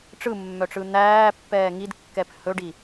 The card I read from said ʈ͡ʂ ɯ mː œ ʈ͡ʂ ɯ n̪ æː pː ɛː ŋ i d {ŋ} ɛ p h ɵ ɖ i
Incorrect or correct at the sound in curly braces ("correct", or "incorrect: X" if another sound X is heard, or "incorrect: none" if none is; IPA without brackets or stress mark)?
incorrect: kː